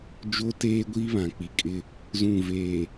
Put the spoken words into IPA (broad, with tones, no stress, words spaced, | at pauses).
d͡ʒo˦teː˦ɡʷi˦ βã˨k͡pi˨kʼɪ˦ | zũ˦˨ ve˨